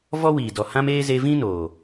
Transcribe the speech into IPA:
v ɔ˦ w iː˨ d ɔ˨ h ã˧ m eː˧ z e˧ v ĩ˦ n oː˨

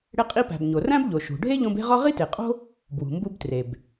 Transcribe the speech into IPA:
ɽ e˧ qʼ i˧ p æ̤˩ b ɲ o˩ r æ̃˥ b ʎ o˩ ʃ ṳ˩ ɖʱ e˥ ʎ õ˧ b e̤˥ ʁ ɒ˥ ʁ i˥ t e˩ qʼ o̤˥ | b w ṳ˩ m b u˧ b t r e˩ b

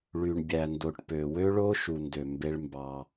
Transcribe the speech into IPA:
ɭ y˨ ɳ bʲ æ˨ n d o˨ ʈ p ø˨ w ø˦ ɭ o˦ ʃ u˨ n d ø˨ m b e˦ ɭ m b ɑ˦

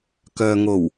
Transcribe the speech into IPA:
k œː˨ ŋ o˨˩ w

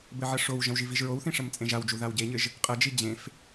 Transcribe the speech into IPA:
b ɘ ʕ ɐ ʂ o w ʒ ɐ̃ w ʒ i v i ʒ ɹ o w θ ĩ ʂ ɐ m t͡sʼ ẽ ʒ a w d͡ʒ u ð a w ɟ e ɲ ɘ ʒ | qʼ ɐ d͡ʒ i d͡ʑ ẽ f

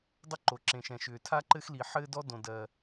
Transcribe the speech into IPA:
dˤ ɘ˥ ǃ o˩ ǁ ẽ˩ ʃ ɛ̃˩ ʃ ʏː˩ tʰ a˥ ǃ ɘ˥ x l i˩ ħ ɘː˥ d ɔ˥ d õ˩ d ɜ˩

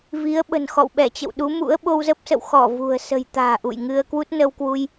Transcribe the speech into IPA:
v i˨˦ ə̯ ɓ ə̤˨˩ n x ɔ̰˧˨ w ɓ ɛ˧˩ t͡ɕ ə̰˧˨ w ɗ u˨˦ m ṵ˧˥ ə̯ ɓ o˧ w z ə˦˥ p̚ s ə̰˧˨ w x ɔ˧˩ v ṳ˨˩ ə̯ s ə̤˨˩ j t̪ a̤ː˨˩ ʔ ṵ˧˨ j ŋ ɨ˧ ə̯ k w u˦˥ t̚ n ə˧ w k w u˧ j

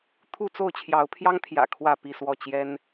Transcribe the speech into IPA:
t̪ʰ u˥˨ t͡s o˥˨ ʊ̯ t͡ɕʰ j ɑ˨˦ ʊ̯ pʰ j ɑ˦ ŋ t̪ʰ j ä̰˨˩ kʰ w ä˥˨ p i˥˨ s w ɔ˥˨ t͡ɕ j ɛ˦ n

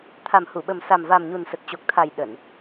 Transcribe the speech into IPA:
t̪ʰ a˨˩ m h u˧˩ ɓ ə˨˩ m s a˨˩ m v a˨˩ m ɲ u˨˩ n s ə˨˩ t̚ t͡ɕ o˨˩ k̚ t̪ʰ a˨˩ j ɗ ə˧˩˨ n

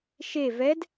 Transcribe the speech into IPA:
ʃ e v ɛ d

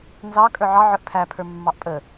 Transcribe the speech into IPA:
n z ɑ kʼ ə˞ ʕ ɑ ʕ ə˞ ʔ pʰ æ pʰ ə˞ mː ɑ ʔ pʼ ə

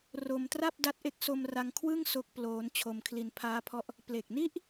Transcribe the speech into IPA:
r o˧ m t r a˥˩ p̚ d a˦˥ t̚ ʔ e˦˥ k̚ s o˧ m r a˧ ŋ kʰ w ɯ˥˩ ŋ s o˦˥ k̚ p l oː˦˥ n t͡ɕʰ o˧ m kʰ l i˧ n pʰ aː˦˥ pʰ ɔ˦˥ ʔ | p l e˨˩ k̚ n i˦˥ ʔ

